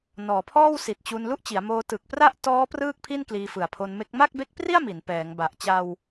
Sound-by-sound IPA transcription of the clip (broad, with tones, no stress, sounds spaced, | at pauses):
n ɔː˩˦ pʰ ɔː˥˩ w s i˨˩ t̚ t͡ɕ u˧ n l u˥˩ ʔ t͡ɕ i˩˦ a̯ m oː˧ t ɯ˨˩ k̚ p r a˥˩ ʔ t ɔː˦˥ p r ɯː˥˩ k̚ pʰ i˥˩ n k l iː˧ f ɯ˨˩ a̯ pʰ o˧ n m e˦˥ k̚ m a˥˩ k̚ b e˦˥ k̚ p r i˥˩ a̯ m i˩˦ n p ɛː˩˦ ŋ b a˨˩ ʔ t͡ɕ a˧ w